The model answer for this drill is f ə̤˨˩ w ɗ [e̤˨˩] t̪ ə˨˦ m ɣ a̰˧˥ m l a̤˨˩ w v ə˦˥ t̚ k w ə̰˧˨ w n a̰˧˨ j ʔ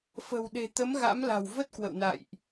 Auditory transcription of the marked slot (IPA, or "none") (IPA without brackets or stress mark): e̤˨˩